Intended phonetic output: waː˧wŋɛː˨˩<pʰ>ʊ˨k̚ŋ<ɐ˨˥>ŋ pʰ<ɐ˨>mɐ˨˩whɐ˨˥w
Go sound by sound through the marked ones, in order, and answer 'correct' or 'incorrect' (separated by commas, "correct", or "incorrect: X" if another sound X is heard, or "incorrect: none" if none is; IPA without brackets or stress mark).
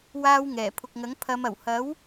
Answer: correct, correct, incorrect: ɐ˨˧